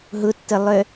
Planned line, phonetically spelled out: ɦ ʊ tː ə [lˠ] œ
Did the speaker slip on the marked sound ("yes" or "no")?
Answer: no